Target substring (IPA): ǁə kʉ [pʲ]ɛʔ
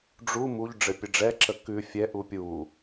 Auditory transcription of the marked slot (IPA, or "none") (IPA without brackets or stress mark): fʲ